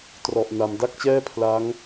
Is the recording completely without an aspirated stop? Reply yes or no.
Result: no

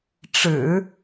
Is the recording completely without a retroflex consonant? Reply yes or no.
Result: no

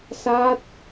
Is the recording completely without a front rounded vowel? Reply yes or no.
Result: yes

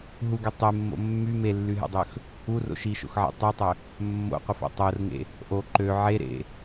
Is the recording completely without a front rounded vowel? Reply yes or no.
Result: no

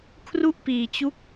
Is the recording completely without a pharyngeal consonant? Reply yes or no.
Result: yes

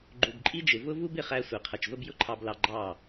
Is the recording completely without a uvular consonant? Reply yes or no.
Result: no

